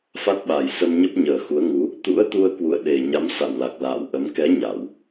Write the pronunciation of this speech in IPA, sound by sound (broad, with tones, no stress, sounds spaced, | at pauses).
f a˦˥ t̚ ɓ a˨˩ j s ə˧ m ɲ ə˦˥ p̚ ɲ əː˨˩ x u˨˦ ə̯ ŋ u˨˦ | t̪ ṵ˧˥ ə̯ t̪ u˧ ə̯ k w ṵ˧˨ ə̯ ɗ e˨˩ ɲ a˨˦ m s a̰˧˨ w l a˨˩ k̚ l a̰ː˧˨ w ʔ ə˨˦ m k ɛ˨˦ ɲ a˧˩˨ w